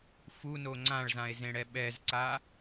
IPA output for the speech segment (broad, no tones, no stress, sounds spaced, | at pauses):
f u n o ŋ͡ǀ ã ɭ z ã e̯ z ẽ ɽ ɛ ɓ ɛ z ǀ a